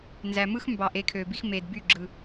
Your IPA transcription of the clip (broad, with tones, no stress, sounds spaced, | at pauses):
n z æ˨ m ɯ˦ x m b ɑ˨ ʔ e˨˦ kʰ ø˨ b i˦ x m e˨ d b y˦˨ ɡ͡ǁ ɯ˨